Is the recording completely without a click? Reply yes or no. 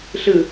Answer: yes